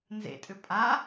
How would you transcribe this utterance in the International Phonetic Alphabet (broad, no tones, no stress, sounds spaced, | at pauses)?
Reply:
n z ḛ tʼ ʏ pʼ a